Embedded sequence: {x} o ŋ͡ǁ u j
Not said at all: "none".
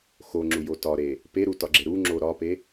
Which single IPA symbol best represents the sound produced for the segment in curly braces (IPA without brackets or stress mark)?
x